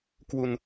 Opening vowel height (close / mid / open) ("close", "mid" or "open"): close